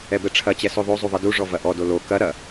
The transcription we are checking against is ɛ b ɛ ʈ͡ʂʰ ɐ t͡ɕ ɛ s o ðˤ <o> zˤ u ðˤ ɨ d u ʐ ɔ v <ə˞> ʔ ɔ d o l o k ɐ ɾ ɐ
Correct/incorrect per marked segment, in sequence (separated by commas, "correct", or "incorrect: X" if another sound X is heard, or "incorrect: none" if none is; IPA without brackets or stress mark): correct, incorrect: ɐ